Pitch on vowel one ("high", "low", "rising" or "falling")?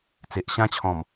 low